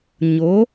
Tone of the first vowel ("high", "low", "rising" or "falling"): rising